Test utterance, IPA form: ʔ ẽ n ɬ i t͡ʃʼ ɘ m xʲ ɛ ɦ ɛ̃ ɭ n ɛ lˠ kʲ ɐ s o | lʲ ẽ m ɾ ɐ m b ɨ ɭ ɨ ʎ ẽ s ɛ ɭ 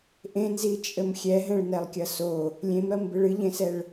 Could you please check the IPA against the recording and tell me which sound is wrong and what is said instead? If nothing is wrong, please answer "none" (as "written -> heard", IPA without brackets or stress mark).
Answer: ɬ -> z